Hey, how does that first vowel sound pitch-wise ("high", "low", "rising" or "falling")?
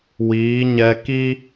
rising